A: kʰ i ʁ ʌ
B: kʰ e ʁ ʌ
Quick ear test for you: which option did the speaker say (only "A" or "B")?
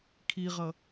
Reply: A